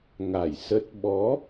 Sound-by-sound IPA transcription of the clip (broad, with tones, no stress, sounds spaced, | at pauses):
ŋ a˧˩ j s ə˦˥ t̚ ɓ ɔ˨˦